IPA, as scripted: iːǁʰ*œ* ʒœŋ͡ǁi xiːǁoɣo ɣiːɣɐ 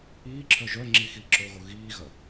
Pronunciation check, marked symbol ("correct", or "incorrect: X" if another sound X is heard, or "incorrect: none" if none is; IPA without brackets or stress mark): correct